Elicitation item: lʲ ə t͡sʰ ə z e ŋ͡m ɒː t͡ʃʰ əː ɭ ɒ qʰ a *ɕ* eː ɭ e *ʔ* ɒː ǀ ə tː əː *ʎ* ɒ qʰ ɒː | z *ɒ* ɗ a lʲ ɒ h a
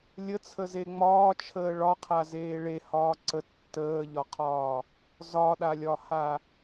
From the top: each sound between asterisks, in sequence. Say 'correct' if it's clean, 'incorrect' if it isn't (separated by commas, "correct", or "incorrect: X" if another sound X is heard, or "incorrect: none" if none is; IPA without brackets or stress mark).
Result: incorrect: z, incorrect: h, correct, correct